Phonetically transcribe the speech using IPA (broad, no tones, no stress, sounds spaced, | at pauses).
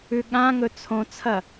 ʉ ɠ ã ŋ ɵ t͡sʰ õ t͡sʰ ɐ